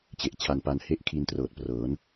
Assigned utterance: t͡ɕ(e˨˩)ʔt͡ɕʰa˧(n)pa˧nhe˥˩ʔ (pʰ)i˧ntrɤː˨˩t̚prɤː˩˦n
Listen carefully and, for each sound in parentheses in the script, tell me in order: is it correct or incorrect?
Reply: correct, correct, incorrect

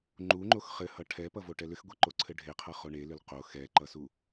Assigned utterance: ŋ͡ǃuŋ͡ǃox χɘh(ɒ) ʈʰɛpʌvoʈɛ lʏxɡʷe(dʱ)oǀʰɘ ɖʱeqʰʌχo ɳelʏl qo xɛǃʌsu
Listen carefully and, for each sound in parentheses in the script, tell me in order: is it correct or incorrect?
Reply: incorrect, incorrect

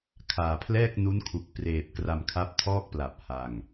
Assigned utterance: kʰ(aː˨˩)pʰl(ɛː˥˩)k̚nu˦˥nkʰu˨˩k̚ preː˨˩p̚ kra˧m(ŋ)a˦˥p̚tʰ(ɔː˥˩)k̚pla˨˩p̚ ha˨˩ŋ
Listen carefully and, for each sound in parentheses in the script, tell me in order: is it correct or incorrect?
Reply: correct, correct, incorrect, correct

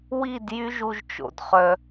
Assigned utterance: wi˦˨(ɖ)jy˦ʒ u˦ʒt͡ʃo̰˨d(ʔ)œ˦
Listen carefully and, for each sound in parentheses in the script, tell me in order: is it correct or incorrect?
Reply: incorrect, incorrect

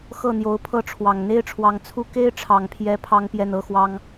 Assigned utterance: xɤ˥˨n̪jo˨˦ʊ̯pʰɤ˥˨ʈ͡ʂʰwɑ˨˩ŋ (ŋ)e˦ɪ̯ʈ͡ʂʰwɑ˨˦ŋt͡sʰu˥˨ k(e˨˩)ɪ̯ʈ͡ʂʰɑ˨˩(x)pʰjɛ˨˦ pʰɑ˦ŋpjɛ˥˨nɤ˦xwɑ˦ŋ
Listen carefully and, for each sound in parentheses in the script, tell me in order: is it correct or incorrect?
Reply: incorrect, incorrect, incorrect

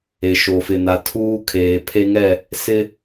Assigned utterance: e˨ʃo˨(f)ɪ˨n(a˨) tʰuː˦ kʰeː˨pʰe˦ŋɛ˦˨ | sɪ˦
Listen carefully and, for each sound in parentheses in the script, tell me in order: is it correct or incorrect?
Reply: correct, correct

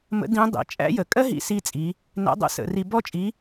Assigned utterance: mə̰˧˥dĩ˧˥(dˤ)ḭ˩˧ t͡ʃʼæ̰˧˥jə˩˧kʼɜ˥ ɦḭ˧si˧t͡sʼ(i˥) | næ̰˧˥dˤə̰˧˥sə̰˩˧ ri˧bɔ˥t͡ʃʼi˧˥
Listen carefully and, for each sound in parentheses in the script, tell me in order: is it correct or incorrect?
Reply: correct, incorrect

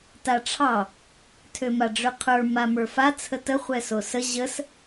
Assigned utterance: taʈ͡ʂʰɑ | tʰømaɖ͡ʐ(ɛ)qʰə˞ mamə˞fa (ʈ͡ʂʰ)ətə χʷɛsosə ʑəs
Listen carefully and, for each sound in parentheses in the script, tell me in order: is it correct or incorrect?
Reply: incorrect, incorrect

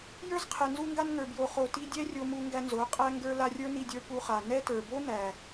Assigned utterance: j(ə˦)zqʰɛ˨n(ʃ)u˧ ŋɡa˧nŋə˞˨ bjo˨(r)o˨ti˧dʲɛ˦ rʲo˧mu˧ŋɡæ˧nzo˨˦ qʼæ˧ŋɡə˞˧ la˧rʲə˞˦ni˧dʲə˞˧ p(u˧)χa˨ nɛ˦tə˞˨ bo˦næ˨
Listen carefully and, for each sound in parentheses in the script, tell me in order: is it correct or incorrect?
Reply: incorrect, incorrect, incorrect, correct

